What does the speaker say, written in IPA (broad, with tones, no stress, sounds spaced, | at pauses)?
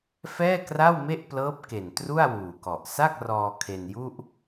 f ɛː˥˩ k r a˥˩ w m e˥˩ ʔ p l ɤː˦˥ p̚ k e˨˩ n t r u˥˩ a̯ w uː˨˩ k ɔ˨˩ ʔ s a˥˩ k̚ r ɔː˧ kʰ e˧ n j u˥˩ ʔ